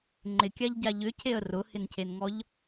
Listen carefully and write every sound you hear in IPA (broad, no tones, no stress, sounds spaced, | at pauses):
ŋ͡ǃ ɪ kʲ a ʎ ɟ a ʎ ʏ cʰ e ə̯ r ʊ h ɪ n cʰ e n ŋ ɔ ʎ